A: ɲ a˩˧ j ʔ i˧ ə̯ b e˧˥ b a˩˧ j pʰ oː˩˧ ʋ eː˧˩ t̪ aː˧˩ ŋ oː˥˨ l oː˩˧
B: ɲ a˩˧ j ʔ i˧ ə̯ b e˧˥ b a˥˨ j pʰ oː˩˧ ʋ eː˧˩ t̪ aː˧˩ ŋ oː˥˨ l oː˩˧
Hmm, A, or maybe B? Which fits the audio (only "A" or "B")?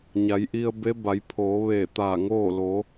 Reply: A